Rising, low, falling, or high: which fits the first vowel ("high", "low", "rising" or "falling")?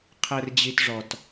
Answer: low